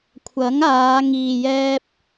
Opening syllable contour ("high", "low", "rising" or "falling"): rising